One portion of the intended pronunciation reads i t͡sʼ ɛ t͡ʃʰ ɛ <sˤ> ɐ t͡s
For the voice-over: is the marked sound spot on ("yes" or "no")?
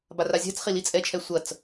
no